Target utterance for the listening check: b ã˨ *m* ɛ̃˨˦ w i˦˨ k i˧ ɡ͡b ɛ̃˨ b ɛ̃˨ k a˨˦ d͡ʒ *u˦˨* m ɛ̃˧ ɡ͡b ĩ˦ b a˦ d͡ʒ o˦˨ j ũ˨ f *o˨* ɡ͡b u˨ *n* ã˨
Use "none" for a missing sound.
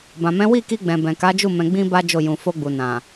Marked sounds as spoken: m, u˦˨, o˧, n

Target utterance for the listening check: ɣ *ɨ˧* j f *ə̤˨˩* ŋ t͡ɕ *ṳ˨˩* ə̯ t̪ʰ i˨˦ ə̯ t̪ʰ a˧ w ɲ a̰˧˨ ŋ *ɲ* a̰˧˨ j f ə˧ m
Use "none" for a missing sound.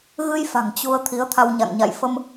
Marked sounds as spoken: ɨ˧, a̤˨˩, u˧, ɲ

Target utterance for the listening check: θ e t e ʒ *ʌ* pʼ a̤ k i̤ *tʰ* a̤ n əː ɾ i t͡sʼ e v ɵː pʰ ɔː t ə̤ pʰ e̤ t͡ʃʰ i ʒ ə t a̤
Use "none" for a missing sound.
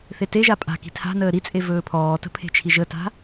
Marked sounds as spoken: a, tʰ

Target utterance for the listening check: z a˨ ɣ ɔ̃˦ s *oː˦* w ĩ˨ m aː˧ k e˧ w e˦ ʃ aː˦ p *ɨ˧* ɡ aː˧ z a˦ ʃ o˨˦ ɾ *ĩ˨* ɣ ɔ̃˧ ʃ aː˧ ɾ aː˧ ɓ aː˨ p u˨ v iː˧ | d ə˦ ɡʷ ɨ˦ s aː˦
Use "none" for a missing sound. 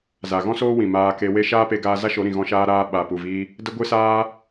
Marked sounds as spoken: oː˦, e˧, ĩ˨

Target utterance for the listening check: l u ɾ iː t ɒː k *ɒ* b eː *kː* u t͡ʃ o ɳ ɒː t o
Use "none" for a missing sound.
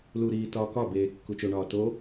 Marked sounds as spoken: ɒ, kː

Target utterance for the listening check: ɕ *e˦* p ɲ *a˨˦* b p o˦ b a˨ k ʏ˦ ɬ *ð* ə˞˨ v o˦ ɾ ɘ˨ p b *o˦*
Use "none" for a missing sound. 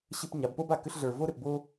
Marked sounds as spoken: ɘ˦, a˨˦, ɮ, o˦

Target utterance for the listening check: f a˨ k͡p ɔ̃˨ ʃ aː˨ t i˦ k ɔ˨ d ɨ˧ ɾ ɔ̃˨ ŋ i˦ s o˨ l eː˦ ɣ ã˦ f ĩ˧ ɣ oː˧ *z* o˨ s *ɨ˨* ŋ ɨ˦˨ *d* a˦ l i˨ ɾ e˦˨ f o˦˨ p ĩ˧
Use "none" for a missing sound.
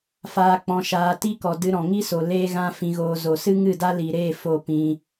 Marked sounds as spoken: z, ɨ˦, d

